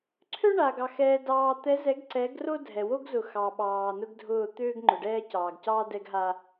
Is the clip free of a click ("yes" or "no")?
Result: no